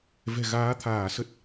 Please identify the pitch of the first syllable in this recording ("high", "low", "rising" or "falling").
low